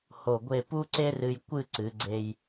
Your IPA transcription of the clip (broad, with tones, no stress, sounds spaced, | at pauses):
h o˧˩ ɡʷ e˥˧ p u˥ ǀ e˥ r ɨ˧ j kʷ ɨ˥˧ ǀ ɨ˩˧ ɡ͡ǀ e˧ j